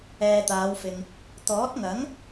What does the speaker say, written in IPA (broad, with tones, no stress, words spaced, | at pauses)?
ɛː˨t̪aː˨˧wfɪ˨ŋ | t̪ɔː˨˥t̚ŋɐ˨˥ŋ